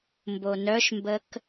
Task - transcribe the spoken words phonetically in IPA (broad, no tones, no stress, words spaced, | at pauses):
mbonœʃmbək